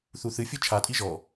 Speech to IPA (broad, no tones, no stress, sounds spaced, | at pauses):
θ u θ ɨ fʲ ɨ t͡ʃʰ a tʼ i ʒ ɔ